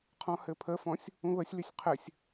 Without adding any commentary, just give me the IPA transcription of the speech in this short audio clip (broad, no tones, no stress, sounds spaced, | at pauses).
qʰ ɔ̃ h ɘ pʰ ə f ɔ̃ sʲ | ũ β ə sʲ l y sʲ qʰ ɘ sʲ